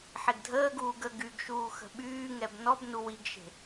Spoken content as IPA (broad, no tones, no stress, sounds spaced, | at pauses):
ħ e ɡ dʱ əː ɡ uː ɡ ə ɡ y ɡ ʃ uː x ə̤ ɓ yː ŋ ɛ b n ɔ b n u w i ɡ ʃ e̤